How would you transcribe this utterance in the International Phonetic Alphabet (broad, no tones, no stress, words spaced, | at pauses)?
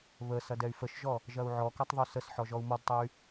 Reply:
βə sɐdɛy̯fəʃʒɔ | ʒɐu̯ʕɔkɐtˤ ðˤosəsħɔ ʒɔu̯mɔdtˤɛy̯